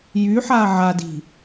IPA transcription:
j y ħ a ʕ a d i̤

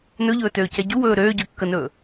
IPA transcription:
n ɵ ʎ ɵː t øː c ɛ ɟ u w ɵː ɾ øː ɟ ø kː ə n ɵː

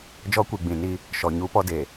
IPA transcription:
d͡ʒ ɔ˦ kʷ i˨ ɡ͡b ĩ˨ n i˦ | ʃ ɔ˨ ɲ u˦ p ɔ˦ d e˨

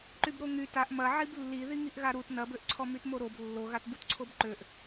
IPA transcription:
ǃ y b ɾ o ŋ y t a ʔ m ɐ ʕ i b lː i ð i ŋ i ʔ ɣ a ɾ u t n ɐ b ø ʔ ǀʰ ɔ m y t m o ɾ o b lː o ɣ a t b u t ǀʰ o b ǃ ø ʔ

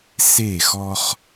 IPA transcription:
s e˦˨ x ɔ˦ χ

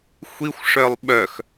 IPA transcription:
xʷ i xʷ ʂ œ lˠ ɓ œ x

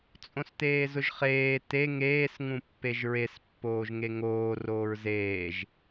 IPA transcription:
t͡sʼ õ s t eː z ʊ ʒ χ eː t e ŋ eː s ŋ ũ pː e ʒ ɹ e s pː oː ʒ ŋ e ŋ oː r oː ɹ z eː ʒ

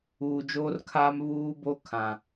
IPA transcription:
uː˨ d͡ʒ oː˦ r kʰ aː˦ m β uː˦ b o˦ kʰ ã˨

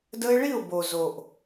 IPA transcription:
d ə˦ ɪ̯ ɭ i˦˨ ʊ̯ b o˨ z o˨ ʔ

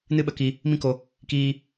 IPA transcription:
n ɨ˦ ɓ ə˧ k i˧ | m ĩ˦ k o˧ | k iː˦

